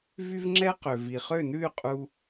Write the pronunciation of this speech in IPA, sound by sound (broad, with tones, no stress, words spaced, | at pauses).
vy˦vŋ͡ǁɛ˦qø˨ vi˨χø˦˨nʉ˦˨y̯ qʼu˧